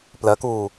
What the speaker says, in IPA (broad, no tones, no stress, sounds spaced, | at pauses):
p l ɜ k uː